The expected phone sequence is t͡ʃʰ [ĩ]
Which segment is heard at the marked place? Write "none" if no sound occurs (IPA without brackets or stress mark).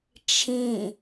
ĩ